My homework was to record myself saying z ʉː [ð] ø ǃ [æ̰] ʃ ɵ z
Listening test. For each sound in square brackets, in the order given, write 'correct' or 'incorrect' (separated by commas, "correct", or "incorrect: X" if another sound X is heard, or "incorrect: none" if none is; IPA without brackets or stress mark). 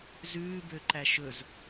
incorrect: b, incorrect: æ